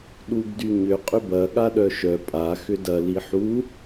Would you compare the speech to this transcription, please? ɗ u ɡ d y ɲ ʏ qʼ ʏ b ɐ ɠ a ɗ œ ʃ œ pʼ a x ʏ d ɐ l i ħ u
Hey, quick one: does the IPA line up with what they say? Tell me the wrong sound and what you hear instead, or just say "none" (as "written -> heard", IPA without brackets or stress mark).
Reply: none